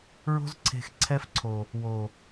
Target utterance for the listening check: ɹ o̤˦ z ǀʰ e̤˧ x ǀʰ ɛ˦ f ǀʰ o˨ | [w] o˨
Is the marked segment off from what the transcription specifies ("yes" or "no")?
no